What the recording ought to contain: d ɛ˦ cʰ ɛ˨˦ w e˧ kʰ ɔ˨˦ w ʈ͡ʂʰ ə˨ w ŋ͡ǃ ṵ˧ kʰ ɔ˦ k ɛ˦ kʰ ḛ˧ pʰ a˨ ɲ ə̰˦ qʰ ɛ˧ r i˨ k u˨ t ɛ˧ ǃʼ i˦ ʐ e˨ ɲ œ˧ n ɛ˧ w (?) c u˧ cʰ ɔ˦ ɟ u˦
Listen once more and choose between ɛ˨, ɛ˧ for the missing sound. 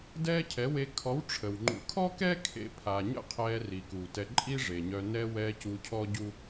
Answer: ɛ˧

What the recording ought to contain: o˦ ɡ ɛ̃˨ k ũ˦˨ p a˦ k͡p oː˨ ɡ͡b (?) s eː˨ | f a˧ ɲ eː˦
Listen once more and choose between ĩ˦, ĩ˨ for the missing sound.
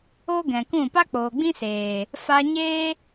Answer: ĩ˦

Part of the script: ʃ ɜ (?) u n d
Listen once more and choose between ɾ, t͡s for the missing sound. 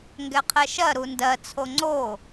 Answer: ɾ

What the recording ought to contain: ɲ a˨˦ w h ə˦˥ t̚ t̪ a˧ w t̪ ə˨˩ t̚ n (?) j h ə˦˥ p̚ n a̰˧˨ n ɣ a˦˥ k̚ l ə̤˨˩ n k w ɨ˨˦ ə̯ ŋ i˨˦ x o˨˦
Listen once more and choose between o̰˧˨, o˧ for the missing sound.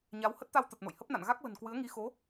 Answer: o̰˧˨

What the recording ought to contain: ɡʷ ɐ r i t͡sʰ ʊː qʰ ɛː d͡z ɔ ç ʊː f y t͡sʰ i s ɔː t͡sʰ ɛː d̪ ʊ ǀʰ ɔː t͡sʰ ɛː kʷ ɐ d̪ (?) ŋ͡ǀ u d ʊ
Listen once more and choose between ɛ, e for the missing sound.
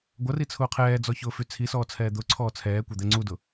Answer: ɛ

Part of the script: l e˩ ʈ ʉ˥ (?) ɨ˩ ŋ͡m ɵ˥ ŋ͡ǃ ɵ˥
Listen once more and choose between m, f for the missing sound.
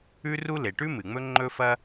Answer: m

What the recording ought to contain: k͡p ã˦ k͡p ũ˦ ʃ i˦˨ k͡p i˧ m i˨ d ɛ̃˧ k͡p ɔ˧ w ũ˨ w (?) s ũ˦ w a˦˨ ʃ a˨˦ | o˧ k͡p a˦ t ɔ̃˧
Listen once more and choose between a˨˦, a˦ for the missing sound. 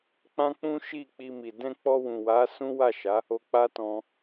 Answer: a˨˦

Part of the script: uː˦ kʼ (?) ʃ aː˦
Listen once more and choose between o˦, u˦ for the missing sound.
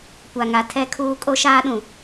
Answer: o˦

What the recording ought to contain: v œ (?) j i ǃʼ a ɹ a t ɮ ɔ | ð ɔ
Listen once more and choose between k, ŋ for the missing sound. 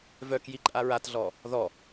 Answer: k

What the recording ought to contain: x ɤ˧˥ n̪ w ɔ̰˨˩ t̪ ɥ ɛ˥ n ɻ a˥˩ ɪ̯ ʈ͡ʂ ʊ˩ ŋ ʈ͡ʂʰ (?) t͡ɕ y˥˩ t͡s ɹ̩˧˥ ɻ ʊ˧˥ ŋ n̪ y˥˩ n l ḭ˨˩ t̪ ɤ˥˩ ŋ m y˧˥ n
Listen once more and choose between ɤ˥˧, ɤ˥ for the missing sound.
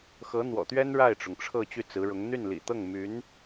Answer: ɤ˥˧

